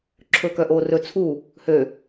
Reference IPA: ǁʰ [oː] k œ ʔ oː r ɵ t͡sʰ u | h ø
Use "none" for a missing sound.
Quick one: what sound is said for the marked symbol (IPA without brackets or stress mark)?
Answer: ɵː